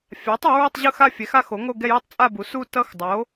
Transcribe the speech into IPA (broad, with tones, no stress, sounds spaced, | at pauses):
fʲ a˩˥ tˤ o˩˥ ɹ i˥˧ tˤ ʑ ɯ˥˧ x a˥˧ fʲ ɛ˩˥ x a˥˧ x o˩˥ ŋ o˥˧ ɡ ɛ˥˧ j i˥˧ tˤ t͡sʼ a˥˧ b u˩˥ s u˥˧ t ʌ˥˧ x dˤ o˩˥